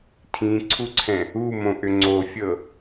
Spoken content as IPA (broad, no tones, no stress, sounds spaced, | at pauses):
tʰ ĩ ǀʰ u ǀʰ ɛ̃ | u m õ ʔ ʏ ŋ͡ǀ o fʲ ɤ